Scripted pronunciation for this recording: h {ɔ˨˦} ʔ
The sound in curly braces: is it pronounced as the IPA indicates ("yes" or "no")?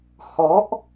yes